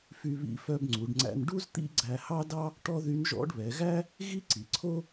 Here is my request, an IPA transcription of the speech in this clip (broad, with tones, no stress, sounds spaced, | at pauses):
f y˧ β ḭ˧˥ f œ˧ b ŋ͡ǀ u˩˧ ɖ ŋ͡ǀ æ̰˧ n ɖ u˥ z t̪ ḭ˥ ɡ͡ǀ æ˧ h ɑ˥ d ɑ˥ | ʈ ɔ˥ ð y˧˥ n ʒ ɔ̰˧˥ ɖ β ɛ˩˧ ɣ æ˥ | ɣ i˥ ǀ i˩ ǀʰ o˥